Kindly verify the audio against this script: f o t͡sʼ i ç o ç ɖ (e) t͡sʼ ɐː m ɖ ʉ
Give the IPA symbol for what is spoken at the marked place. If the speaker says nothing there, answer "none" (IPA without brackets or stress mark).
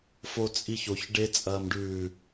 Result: e